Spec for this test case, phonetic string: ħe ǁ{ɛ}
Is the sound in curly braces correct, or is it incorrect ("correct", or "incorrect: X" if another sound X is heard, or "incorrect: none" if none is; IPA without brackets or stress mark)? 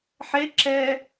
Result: correct